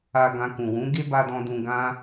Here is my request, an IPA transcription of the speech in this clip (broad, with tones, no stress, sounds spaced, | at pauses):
a˧ ɡ ã˧ k ũ˨ w ũ˨˦ ɡ e˦ b a˧ d ɔ̃˧ d ũ˧ ɡ ã˦